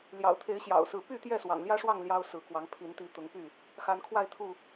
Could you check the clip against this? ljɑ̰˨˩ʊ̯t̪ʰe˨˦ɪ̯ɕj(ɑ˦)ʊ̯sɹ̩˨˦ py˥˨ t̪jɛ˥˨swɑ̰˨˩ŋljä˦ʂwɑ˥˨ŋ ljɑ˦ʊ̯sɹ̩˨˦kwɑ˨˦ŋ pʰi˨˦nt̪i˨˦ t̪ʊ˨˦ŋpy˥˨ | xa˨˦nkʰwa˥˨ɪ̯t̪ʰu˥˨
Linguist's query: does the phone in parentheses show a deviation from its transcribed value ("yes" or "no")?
yes